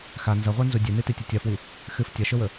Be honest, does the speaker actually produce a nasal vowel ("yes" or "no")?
no